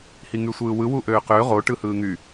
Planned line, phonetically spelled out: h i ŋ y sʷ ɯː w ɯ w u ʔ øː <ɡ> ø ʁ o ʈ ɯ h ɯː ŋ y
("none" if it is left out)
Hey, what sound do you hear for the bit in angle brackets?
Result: q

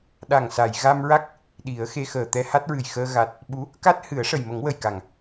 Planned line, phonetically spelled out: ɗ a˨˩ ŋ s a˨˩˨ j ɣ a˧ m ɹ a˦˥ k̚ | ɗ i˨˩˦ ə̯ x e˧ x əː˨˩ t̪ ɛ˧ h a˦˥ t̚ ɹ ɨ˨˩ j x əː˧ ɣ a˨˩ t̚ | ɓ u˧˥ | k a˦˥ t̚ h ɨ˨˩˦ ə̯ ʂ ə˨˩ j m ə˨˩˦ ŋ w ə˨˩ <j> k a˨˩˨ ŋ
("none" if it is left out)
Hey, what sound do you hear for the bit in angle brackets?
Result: j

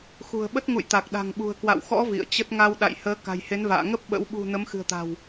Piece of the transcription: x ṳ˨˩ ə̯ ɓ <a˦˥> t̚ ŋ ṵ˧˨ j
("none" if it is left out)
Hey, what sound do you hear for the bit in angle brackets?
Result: ə˦˥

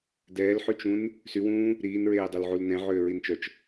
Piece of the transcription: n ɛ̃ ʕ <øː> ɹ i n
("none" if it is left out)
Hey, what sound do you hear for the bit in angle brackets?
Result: øː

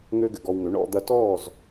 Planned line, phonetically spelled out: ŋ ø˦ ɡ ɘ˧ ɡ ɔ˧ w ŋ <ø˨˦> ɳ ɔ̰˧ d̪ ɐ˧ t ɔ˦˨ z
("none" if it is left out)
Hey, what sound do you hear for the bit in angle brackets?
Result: ø˨˦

